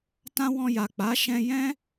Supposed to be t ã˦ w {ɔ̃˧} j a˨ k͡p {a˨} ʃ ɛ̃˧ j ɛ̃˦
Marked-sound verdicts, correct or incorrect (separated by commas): correct, incorrect